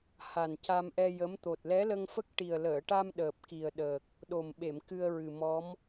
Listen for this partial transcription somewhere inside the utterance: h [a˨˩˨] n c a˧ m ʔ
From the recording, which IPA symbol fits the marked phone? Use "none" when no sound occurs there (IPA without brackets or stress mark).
a˨˩